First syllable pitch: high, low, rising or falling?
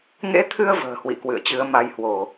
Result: rising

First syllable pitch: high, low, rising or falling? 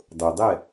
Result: low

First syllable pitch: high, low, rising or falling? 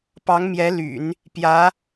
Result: rising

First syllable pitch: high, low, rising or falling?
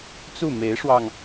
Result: falling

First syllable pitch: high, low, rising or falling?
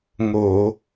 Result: low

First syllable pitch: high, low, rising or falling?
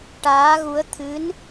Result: rising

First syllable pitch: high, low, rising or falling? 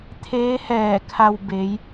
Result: rising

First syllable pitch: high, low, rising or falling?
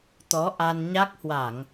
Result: rising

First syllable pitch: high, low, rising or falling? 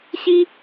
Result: high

